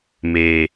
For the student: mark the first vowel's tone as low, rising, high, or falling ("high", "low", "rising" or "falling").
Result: low